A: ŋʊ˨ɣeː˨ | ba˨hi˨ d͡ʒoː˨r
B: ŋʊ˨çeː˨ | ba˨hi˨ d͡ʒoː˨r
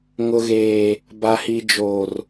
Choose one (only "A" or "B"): A